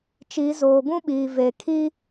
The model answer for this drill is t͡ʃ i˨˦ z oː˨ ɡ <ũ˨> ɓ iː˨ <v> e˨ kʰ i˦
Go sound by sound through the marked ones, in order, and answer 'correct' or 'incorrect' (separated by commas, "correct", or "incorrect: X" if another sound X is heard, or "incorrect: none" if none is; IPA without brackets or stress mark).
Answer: incorrect: ũ˦, correct